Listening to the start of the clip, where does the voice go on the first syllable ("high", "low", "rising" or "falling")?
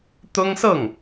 high